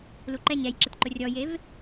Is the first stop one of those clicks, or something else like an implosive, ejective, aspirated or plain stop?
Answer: click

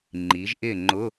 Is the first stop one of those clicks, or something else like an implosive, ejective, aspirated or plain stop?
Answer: click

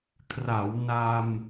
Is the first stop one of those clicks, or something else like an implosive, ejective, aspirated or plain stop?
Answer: aspirated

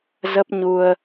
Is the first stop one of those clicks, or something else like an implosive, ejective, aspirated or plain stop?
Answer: plain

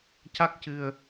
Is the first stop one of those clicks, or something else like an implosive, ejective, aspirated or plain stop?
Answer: plain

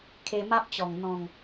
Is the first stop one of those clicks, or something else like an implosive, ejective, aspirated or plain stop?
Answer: aspirated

